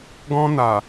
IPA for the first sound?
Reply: ɡ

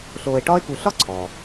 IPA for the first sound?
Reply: ɬ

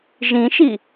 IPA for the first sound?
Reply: ʒ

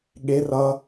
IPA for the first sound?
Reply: ɠ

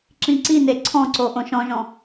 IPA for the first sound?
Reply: ǁ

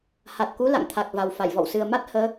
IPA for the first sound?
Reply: h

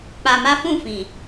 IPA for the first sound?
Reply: k͡p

